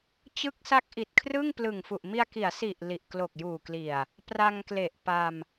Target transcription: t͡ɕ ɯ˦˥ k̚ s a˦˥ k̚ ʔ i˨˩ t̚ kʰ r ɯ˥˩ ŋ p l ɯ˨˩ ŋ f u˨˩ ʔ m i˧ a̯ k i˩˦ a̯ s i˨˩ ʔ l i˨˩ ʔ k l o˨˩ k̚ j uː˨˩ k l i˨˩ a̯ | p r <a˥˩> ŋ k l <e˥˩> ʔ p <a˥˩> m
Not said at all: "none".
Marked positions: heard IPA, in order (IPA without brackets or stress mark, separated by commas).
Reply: a˧, e˨˩, a˧